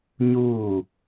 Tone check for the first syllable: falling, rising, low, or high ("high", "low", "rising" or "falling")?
falling